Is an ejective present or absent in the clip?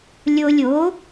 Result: absent